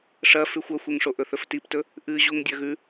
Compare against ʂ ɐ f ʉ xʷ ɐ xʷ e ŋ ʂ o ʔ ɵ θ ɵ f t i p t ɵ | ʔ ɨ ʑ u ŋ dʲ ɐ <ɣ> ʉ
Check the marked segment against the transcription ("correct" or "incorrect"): correct